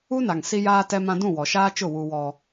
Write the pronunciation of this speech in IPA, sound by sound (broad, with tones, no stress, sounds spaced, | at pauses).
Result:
u˦ n a˨ ŋ s i˦ j aː˦ t ɛ˦ m ã˦ d ũ˦˨ w ɔ˨ ʃ aː˦ t͡ʃ ʊ˦˨ w u˦ w ɔ˦